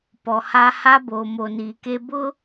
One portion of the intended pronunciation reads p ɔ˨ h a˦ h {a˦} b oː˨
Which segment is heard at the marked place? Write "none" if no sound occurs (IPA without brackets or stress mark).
a˦